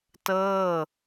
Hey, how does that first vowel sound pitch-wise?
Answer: falling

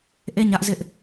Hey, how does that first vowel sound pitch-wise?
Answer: falling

